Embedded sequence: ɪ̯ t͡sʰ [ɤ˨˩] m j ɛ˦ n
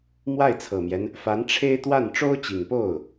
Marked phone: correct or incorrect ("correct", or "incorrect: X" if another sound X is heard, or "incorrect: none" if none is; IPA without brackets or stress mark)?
correct